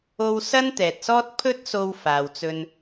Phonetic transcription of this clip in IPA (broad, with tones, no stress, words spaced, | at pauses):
o˧w sɐ˥nt̪ɛː˨t̚sɔː˥t̚ pʰɵ˥t̚so˧w faː˨wt͡sɵ˧n